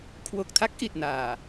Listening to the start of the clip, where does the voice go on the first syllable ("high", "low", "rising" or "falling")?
low